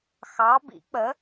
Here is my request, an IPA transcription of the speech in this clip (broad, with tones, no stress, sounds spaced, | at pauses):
x ɑ˨˦ b ḭ˨˩˦ k͡p ə˨˦